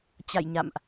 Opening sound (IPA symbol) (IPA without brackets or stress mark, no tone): t͡ɕ